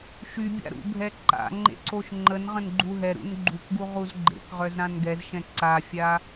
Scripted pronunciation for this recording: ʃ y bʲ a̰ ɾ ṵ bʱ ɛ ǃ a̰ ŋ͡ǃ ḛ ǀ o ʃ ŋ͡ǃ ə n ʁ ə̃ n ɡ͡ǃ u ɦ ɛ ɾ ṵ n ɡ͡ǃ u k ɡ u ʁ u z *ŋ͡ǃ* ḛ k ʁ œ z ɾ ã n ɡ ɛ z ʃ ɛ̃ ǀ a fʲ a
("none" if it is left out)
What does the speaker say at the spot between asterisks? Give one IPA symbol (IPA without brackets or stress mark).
ɡ͡ǃ